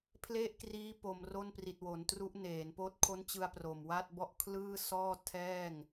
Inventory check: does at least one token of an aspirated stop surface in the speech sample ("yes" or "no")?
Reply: yes